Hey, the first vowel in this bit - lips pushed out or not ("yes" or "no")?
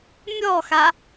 yes